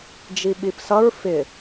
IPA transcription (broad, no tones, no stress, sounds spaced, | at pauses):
d͡ʒ i ɓ i p s ʌ ɹ f ɪ